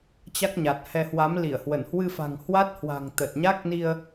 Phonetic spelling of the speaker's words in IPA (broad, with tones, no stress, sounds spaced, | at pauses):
t͡ɕ a˦˥ k̚ ɲ a˨˩ t̚ h ɛ˧ h w a˨˦ m l i˧˩ ə̯ h w ə˧˩ n h w ɨ˧ f a̤˨˩ ŋ h w a˦˥ t̚ h w a̤˨˩ ŋ t̪ ə˨˩ t̚ ɲ a˦˥ k̚ n i˧ ə̯